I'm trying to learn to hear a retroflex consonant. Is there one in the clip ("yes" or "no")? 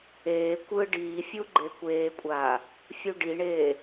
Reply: yes